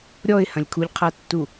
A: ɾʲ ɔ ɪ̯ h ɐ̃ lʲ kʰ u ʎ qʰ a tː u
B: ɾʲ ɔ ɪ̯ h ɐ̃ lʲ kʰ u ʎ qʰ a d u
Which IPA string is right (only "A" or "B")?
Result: A